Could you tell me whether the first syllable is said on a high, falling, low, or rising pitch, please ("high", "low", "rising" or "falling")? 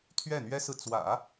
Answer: falling